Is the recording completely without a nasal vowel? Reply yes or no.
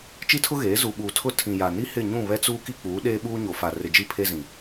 no